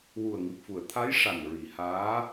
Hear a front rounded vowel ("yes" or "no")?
no